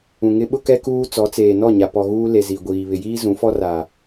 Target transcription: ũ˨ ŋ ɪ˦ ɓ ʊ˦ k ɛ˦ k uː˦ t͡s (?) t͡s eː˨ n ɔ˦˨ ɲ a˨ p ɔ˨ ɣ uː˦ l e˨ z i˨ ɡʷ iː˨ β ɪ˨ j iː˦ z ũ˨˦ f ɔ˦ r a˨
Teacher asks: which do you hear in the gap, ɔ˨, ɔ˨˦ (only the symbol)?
ɔ˨˦